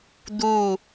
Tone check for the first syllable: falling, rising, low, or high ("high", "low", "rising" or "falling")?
falling